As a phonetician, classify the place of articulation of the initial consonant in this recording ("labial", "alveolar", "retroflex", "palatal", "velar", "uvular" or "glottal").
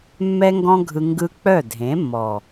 labial